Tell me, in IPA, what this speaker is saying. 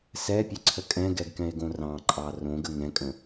s ɛ pʲ ə ǀʰ ə kʼ ɛ̃ ɡ ɛ ɡ k ɛ̃ e̯ ɡ õ r ɑ̃ ǃʼ ɑ r õ ɡ ə ŋ ɛ̃ kʼ ə̃

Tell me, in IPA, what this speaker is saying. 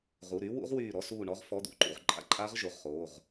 ʁ u˩˧˩ ɾ yː˦˥ w ṵ˦˥ ʁ w yː˧˩ ɾ ɔ˧˥˧ s uː˧˩ ɳ ɔ˦˥ ʁ f ɔ˧˥˧ d̪ ṵ˦˥ ǃ ṵ˧˩ ʁ ǃʼ a̰˦˥ ǃʼ aː˦˥ ʁ ʒ o˩˧˩ ʁ χ oː˩˧˩ ʁ

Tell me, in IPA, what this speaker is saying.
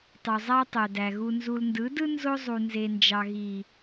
tˤ u˨ zˤ æ˦ tˤ ø˨ d æ˨ ɣ u˨ n z u˨ l n d ɯ˨˦ d ɯ˦ n z o˦ zˤ u˨ n z e˨ n d͡ʒ ɑ˨ ɣ i˨

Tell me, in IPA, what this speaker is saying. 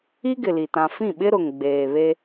i˦ ɡ ɪ˨ l i˨ t ã˨ f ĩ˦˨ ɓ ɪ˦ ɾ ʊ˨ ŋ ɡ͡b eː˨ β e˦

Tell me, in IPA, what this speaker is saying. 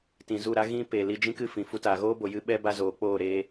t ĩ˨ z u˦˨ ɾ a˦ ɣ ĩ˦ p eː˨ l i˧ d͡ʒ ĩ˦ k ɨ˦ f ĩ˨ f u˧ t a˨ ɣ oː˦ b o˨ j ɨ˦ ɓ ɛ˦ b a˦ z oː˨˦ k͡p oː˦˨ ɾ eː˧

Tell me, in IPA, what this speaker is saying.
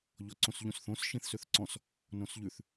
ʎ ɔ ǀ õ s ʎ ũ s θ õ s ʃ ĩ θ s ø θ ǀ ɔ̃ s | n õ s ʎ ʉ θ

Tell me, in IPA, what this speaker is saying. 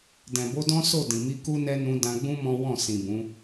d ɛ̃˨ b o˧ d ɔ̃˦ s o˦˨ d ĩ˨ m i˧ k u˦ n ɛ˦ n ũ˧ d ã˧ ɡ͡b ũ˦ m ɔ̃˦ w ɔ̃˦˨ s ĩ˨ b ũ˨˦

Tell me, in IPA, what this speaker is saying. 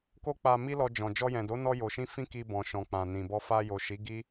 k o˦ k͡p a˧ m i˦ l ɔ˧ d͡ʒ ɔ̃˨ d͡ʒ ɔ˧ j ɛ̃˨ d o˨˦ n ɔ˧ j o˨ ʃ ĩ˧ f ĩ˦ k i˧ b ɔ̃˨ ʃ ɔ̃˨ k͡p ã˨ n ĩ˨ b ɔ˧ f a˧ j o˨ ʃ i˨˦ ɡ i˦

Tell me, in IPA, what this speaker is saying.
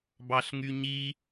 b ɑ ɬ ŋ y ɲ i

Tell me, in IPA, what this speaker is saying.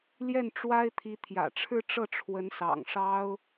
l j ɛ˥˩ n ʈ͡ʂ w a˥ ɪ̯ t̪ʰ i˧˥ t̪ʰ j ä̰˨˩ ʈ͡ʂʰ ɻ̩˥˧ ʈ͡ʂ ɤ˥˩ ʈ͡ʂʰ w ə˧˥ n s ɑ̰˨˩ ŋ ʂ ɑ˥ ʊ̯

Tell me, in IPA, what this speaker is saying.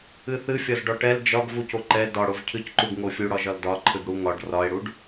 ɨ θ ɨ fʲ ɒ z ɖ ɒ ʈ ɛ l d͡ʒ ɒ ɡ v u c o ǃ ɛ d ɒ ɽ o v cʰ ɨ c ǃ u ɡ ŋ o fʲ u ɽ ɒ ʒ ɒ l d ɒ ǃʰ ɨ ɡ ɽ u ŋ ɒ ɖ r ɒ e̯ ɽ u ɖ

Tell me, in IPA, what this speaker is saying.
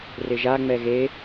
r ɪ ʒ a ŋ͡m ɛ ɣ e

